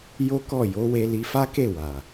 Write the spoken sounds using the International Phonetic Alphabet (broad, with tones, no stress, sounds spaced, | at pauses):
j o˦ k ɔ˦˨ j o˨˦ w e˧ l i˧ f a˦ k e˦˨ w a˨